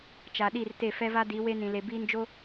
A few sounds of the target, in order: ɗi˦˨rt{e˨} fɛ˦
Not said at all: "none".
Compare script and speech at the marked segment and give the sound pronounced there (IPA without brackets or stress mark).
e˦˨